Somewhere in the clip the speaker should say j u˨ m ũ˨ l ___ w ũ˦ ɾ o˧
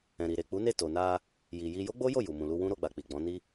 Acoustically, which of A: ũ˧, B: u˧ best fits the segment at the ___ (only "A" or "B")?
B